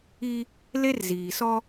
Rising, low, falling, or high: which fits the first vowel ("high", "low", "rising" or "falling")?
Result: high